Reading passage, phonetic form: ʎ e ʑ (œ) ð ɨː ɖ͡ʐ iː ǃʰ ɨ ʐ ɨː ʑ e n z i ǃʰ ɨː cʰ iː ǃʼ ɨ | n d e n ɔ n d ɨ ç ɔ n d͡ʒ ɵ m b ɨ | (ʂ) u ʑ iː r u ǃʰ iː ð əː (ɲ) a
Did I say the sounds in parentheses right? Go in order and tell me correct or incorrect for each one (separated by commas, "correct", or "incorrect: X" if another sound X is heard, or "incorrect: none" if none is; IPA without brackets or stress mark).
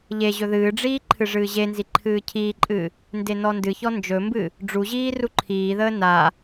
incorrect: ɵ, incorrect: ɖ͡ʐ, incorrect: n